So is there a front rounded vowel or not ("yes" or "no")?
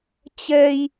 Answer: no